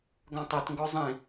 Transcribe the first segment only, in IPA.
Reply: ɡ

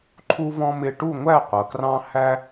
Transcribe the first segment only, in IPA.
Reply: ǃʰ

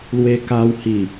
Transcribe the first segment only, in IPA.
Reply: l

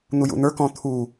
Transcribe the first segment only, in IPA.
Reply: n̪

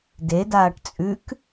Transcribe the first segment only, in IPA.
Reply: d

